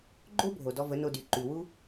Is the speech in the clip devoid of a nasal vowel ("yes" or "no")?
yes